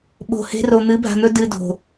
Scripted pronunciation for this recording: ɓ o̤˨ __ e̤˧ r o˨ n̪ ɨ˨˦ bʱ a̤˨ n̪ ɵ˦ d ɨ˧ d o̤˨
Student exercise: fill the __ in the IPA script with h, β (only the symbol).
h